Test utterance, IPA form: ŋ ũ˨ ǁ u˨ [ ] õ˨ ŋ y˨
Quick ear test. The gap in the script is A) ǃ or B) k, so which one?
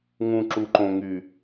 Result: A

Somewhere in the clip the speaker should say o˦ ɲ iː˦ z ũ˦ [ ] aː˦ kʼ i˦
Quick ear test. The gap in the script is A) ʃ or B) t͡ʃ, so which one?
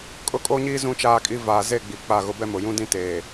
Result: B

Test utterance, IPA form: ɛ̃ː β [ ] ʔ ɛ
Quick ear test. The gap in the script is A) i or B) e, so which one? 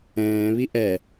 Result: A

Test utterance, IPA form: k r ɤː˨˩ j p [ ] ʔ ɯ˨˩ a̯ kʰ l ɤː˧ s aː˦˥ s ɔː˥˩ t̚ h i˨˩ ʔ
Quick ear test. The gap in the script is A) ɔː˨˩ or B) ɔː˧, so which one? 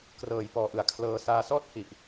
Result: A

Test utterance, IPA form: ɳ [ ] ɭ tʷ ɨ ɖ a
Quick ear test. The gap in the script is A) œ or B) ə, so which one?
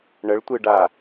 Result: B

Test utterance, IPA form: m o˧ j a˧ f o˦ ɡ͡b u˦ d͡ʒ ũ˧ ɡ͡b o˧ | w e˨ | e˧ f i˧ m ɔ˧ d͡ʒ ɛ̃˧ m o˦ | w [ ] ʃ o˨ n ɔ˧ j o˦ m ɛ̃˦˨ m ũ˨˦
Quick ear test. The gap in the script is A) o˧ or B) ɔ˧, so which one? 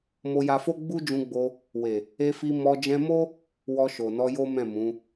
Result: B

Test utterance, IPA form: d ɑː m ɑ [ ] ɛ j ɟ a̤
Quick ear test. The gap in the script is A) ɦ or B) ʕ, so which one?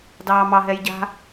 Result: A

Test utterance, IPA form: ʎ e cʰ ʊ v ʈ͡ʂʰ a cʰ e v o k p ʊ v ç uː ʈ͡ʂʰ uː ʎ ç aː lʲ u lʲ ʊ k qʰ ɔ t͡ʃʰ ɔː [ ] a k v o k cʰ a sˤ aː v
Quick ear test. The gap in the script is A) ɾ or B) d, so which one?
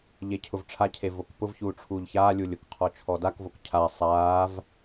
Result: B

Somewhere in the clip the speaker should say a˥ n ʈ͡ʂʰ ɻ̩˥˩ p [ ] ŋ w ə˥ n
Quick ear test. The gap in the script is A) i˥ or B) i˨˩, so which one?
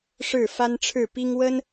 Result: A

